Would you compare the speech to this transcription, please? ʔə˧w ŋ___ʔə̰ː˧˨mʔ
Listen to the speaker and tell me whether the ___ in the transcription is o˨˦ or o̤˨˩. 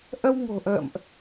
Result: o̤˨˩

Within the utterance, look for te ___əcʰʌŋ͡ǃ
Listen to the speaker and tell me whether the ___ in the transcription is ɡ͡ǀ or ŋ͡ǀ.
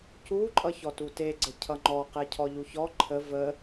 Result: ɡ͡ǀ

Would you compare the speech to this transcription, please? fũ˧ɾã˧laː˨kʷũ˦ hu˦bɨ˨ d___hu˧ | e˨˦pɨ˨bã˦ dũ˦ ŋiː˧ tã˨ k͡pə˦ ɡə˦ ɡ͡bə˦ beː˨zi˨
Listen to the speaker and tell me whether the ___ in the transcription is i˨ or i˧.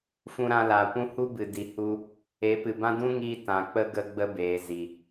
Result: i˨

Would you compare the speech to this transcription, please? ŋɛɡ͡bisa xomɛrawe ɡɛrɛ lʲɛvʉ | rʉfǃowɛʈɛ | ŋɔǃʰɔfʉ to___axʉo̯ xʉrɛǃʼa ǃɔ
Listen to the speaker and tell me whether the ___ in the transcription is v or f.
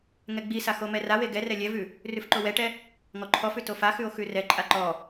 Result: f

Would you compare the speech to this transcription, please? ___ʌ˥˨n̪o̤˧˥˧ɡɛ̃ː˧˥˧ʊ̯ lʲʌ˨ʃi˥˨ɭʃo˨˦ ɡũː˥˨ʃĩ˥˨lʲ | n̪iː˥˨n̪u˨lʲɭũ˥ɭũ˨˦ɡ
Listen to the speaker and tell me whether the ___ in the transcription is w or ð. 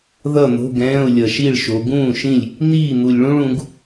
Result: ð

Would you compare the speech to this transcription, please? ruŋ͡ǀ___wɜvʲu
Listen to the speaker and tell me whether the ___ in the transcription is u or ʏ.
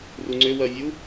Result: ʏ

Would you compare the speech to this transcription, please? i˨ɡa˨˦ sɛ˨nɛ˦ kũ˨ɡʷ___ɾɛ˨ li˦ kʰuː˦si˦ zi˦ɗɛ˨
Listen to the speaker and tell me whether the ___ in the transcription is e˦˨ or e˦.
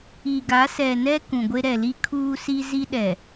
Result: e˦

